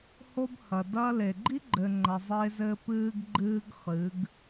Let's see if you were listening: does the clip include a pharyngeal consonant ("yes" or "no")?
no